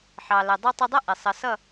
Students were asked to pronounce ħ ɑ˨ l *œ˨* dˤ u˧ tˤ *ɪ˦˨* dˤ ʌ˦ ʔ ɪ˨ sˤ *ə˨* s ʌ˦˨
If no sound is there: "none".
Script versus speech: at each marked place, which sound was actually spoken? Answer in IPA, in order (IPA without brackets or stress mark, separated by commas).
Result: ə˨, ɪ˧, ə˨˦